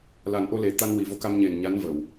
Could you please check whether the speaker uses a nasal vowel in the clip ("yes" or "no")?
no